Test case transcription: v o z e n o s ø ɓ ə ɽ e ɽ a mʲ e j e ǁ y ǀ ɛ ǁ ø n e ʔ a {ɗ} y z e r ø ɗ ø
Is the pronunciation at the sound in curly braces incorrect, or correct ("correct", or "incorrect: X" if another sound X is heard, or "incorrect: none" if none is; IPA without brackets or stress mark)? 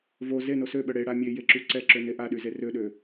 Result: correct